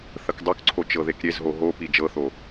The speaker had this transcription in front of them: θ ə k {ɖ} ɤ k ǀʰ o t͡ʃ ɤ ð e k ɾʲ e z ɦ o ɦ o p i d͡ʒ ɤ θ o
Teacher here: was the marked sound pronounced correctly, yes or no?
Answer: no